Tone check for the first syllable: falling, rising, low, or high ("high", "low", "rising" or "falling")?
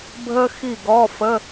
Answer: high